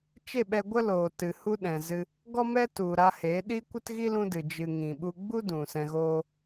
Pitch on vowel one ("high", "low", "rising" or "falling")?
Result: falling